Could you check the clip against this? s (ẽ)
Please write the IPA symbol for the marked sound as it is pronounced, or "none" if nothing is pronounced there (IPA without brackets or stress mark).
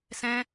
ɛ̃